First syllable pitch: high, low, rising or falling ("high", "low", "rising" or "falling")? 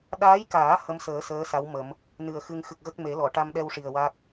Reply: rising